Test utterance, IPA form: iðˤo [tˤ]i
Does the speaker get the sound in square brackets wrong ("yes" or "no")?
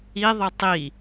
no